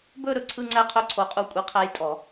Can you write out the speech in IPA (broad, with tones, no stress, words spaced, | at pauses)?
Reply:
bɵ˥˧ ɾɵ˥˩ ǀʰɯ˥˧ŋ͡ǀæ˥˧qʰɵ˥˧ ǀʰo˧˥qʼu˥˩ kʷʼi˧˥qʰæ˧˥jtʼɔ˨˩˦